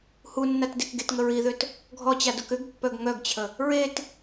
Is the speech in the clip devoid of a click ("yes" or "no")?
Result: yes